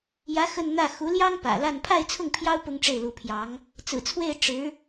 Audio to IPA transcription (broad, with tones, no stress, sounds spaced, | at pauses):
j ä˧˥ x ə˥˧ n n̪ ä˥˩ x u˧˥ l j ɑ˥ ŋ p ä̰˨˩ l a˥˧ n pʰ a˥˧ ɪ̯ t͡sʰ ʊ˥˩ ŋ pʰ j ɑ˥ ʊ̯ p ʊ˥ ŋ ʈ͡ʂ e˥˩ ɪ̯ l u˧˥ pʰ j ɑ˧˥ ŋ | t͡s ɹ̩˨˩ t͡sʰ w e˥˩ ɪ̯ ʈ͡ʂ ɻ̩˧˥